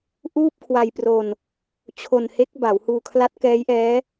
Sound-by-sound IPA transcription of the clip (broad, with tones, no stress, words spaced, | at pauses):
ʔuː˥˩p̚kʰwa˧jpro˧n | t͡ɕʰo˧nhe˦˥k̚ ba˩˦whuː˧kʰla˦˥t̚ kɛː˦˥jʔɛː˦˥